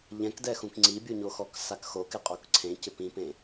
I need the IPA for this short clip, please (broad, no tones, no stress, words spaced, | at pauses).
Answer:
ʎɛ̃kdɛxũk ŋ͡ǀibʲuɲoxɔk sakxok ɪqʼokǀʰẽcɪ pĩpẽ